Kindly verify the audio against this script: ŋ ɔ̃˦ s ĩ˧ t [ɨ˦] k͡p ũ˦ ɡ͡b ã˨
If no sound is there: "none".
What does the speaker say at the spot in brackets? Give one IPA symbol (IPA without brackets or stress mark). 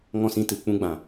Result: ɨ˨